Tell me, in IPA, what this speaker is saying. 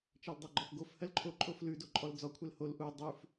t͡ʃɜldˤaɡ͡ǃɔfɡof hɜlǃʰo ǃʼoflʉ doǃʼɔld͡zɔ kʷʰɛlhol ʔu dˤʉf

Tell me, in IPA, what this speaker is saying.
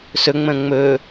sɵŋ͡mə̃ː ŋ͡mɵ

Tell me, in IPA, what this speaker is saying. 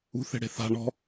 ṳθe̤ɽe̤ θa̤ ɳɔ̤

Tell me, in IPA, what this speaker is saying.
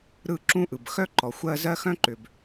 ɾɯ˥˧ǁũ˥ʔɯ˨b xœ˥ǃɔ˨ xʷɜ˥˧zɜ˥ xœ̃˥ǃʏ˨b

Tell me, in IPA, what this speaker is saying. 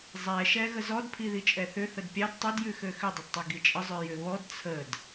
zˤɛʃɛ ɣəzɔdpʰi ðit͡ʃʼɛθʏ θədpʲɑd tˤʏdjʉxø xʏdˤʏdtˤi ɡit͡ʃʼəzˤø jʏβɔd t͡sʰəd

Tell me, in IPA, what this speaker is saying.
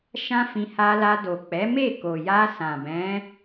ʃã˦fĩ˧ ha˧la˧ do˨k͡pɛ˨˦me˦˨ko˨ ja˧ sã˨bɛ̃˨˦

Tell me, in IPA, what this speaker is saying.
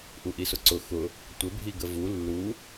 ʔuʔisʊǀʊ xʊ | tʷɘ bʱiɡəvu lːu

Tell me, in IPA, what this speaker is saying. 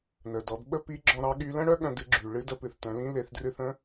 nə˩dɔ˩˧d ɓə˥ pi˧˥ɡ͡ǁɔ̃˧ ɾɑ˧ɠy˧lə̃˥ɽœ˥ ɠœ̃˧dɨ˩˧ɡ͡ǁy˩ ɭɨ˧˥də˧ pɨ˩θtœ̃˩˧lĩ˧˥ le˩˧θdrɨ˧θə̃˧˥

